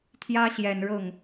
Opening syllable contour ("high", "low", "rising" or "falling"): high